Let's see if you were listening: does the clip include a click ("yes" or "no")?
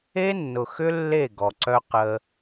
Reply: yes